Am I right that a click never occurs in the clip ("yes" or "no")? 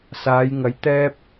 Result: yes